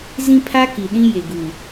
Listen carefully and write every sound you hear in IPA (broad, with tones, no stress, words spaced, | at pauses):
zĩ˦pʰa˦ki˨ɗĩ˦ je˨ɡuː˨